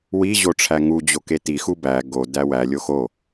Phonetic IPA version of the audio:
w i ʑ o ʈ͡ʂʰ æ ŋ u d͡ʑ o k e t i x u b æ ɡ o d æ w æ lʲ o x o

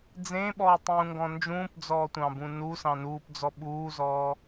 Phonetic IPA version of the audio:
d͡z ẽ ɓ ɔː tˤ ũː ŋ ɡ ɔ̃ n d͡ʒ ũː p d͡z ɔː tʷ ɑ̃ b ũ n u s ɑ̃ n uː p d͡z ɔ ɓ uː z ɔː

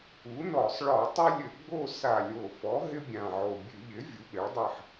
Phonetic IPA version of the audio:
u˩˥ n ɔ˧˩˧ sˤ ɭ ɔ˧˩˧ tˤ ɘ˦ lʲ ɘ˧˩˧ ɡ͡b o˦˨ s a˨˩ lʲ o˨˩ f ɔ˩˥ ɦ ɪ˦ bʲ ã˨˩ ʕ o˨˩ bʲ ʉ˧˩˧ ʎ ɪ˩˥ vʲ u˩˥ ɓ ɪ˩˥ ɭ dˤ ɘ˦˨ ħ

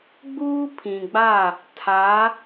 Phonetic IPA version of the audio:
ɡ͡b uː˦ pʰ ĩ˨ ɡ͡b a˦˨ | tʰ a˨˦

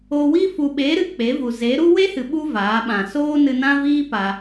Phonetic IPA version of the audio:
o˧ w i˦ f u˨ ɓ e˨˦ ɾ ɨ˨ k͡p e˨˦ v u˨ z e˨˦ ɾ u˦ w e˦ h ɨ˨ ɓ u˧ v aː˨˦ ɓ ã˨ s oː˦ n ɨ˧ n ã˦ v iː˦ p a˧

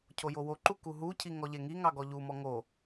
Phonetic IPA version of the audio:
cʰ o j o w o ǃ u k u ɦ u cʰ i ŋ ɔ ʎ e ŋ i ŋ ɑ ɡ ɔ ʎ u m ɔ ŋ o

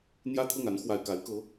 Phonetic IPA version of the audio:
n̪ j ä˥ t̪ʰ ɤ˥˩ ŋ a˧˥ n x w a˨˩ ɪ̯ k a˧˥ ɪ̯ k ɤ˧˥

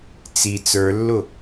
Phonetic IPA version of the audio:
t͡s i t͡s ə˞ lː ʊ

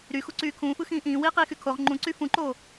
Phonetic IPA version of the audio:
ɾ y x u ǀ yː kʰ ũː f ɯ x ĩː ʔ ĩː w iː q iː x y kʰ o ʁ ŋ͡ǃ ũ ǀ y f ũ ǃ oː

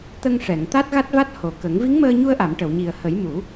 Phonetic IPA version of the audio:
t̪ ə˧ ŋ ʂ ɛ˨˩˨ ŋ t̪ a˦˥ t̚ ɣ a˦˥ t̚ v a˦˥ t̚ h o˨˩ k ə˨˩˦ ŋ v i˧˥ ŋ m əː˧ ɲ u˧ ə̯ ʔ a˨˩˨ m ʈ ə˨˩˨ w ɲ i˨˩ ə̯ h ə˨˩˦ j m u˨˩˦

